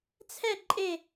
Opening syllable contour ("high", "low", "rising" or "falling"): falling